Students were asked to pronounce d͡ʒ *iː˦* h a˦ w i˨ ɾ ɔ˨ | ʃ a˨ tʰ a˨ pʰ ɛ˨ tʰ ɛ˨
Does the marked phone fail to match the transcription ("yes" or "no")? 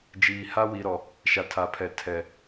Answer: yes